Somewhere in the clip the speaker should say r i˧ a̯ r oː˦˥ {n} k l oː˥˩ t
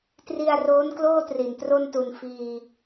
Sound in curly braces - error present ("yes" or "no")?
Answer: no